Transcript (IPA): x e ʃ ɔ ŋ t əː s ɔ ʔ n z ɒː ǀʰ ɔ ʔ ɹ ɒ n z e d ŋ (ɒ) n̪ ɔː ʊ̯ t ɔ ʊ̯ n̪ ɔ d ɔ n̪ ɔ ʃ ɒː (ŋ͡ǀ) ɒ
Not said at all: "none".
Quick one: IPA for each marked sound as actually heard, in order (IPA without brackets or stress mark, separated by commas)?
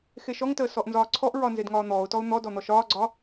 ɒː, ɡ͡ǀ